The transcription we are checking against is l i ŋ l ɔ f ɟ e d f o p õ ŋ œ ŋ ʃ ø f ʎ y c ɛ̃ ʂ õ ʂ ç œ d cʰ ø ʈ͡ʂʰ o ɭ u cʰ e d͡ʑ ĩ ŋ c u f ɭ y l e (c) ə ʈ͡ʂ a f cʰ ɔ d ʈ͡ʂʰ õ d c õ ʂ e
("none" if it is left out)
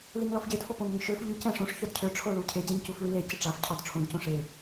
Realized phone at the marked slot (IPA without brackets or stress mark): c